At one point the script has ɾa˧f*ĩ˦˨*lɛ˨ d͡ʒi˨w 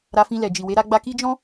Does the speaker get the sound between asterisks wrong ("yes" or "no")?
yes